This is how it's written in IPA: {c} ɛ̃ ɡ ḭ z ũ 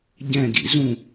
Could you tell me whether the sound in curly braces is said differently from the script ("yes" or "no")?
yes